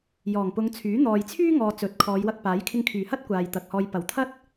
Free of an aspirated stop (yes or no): no